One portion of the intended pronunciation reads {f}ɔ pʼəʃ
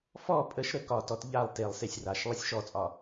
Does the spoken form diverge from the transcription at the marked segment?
no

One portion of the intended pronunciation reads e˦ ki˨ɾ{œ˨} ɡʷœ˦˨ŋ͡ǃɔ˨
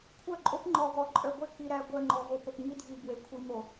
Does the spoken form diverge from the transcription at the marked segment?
yes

